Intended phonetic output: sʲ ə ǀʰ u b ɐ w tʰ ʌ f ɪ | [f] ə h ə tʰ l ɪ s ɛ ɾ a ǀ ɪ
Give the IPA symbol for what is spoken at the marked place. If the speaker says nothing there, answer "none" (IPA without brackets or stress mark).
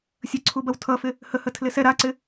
h